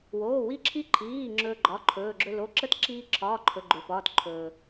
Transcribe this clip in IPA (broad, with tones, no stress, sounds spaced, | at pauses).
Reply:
w oː˩˧˩ w i˧ ǁʰ i˧ ǃʰ iː˩˧˩ ŋ͡ǁ ɵː˧ ɡ͡ǃ ɒ˩˧˩ ǃʰ ɵː˩˧˩ ɡ͡ǁ ɵ˧ l o˩˧˩ ǁ ə˧˥˧ t ǁ iː˧ ǁʰ ɒː˩˧˩ ǃʰ ɵ˩˧˩ ɡ͡ǃ ø˩ f ɒː˩˧˩ t ǃʰ ɵː˩